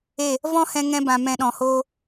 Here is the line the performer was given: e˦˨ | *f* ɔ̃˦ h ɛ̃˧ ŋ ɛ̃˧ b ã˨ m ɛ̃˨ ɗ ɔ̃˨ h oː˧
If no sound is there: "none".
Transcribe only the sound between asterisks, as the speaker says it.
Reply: v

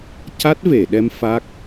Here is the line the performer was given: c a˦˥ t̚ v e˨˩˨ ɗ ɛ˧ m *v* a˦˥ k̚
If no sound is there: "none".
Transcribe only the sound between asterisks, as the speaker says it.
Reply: f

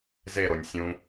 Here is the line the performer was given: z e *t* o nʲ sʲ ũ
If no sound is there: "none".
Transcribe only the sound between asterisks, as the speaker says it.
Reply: ɾ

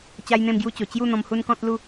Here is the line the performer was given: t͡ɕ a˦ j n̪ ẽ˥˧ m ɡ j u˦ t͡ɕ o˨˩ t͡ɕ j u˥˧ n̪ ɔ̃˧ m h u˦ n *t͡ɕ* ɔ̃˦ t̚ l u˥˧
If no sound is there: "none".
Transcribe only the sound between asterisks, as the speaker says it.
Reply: k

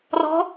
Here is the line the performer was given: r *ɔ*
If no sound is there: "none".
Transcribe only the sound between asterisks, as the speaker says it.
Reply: ɔ̤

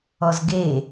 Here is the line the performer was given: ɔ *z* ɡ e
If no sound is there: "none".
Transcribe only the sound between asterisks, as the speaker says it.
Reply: z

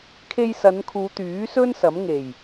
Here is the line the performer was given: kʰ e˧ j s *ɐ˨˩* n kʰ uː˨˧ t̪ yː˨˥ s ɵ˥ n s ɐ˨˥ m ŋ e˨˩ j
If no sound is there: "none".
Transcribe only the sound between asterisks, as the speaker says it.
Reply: ɐ˨˧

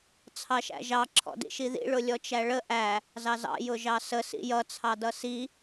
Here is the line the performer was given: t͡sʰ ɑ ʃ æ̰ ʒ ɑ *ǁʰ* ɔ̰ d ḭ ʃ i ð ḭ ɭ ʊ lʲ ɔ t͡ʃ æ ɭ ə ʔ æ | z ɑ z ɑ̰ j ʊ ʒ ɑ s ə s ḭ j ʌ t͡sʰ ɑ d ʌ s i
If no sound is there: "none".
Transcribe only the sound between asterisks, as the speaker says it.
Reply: ǁʰ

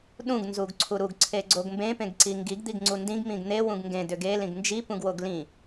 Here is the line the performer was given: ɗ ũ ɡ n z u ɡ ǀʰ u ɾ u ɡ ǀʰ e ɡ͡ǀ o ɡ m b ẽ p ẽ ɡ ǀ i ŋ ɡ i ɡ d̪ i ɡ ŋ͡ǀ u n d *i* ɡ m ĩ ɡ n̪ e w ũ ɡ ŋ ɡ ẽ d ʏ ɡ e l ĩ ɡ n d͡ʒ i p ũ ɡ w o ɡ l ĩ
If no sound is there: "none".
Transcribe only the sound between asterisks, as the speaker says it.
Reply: ĩ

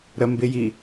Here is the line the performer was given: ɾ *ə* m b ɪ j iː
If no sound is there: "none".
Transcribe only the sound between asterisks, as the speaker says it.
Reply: ə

